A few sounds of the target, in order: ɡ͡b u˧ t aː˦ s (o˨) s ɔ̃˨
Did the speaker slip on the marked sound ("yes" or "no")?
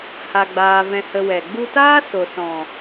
no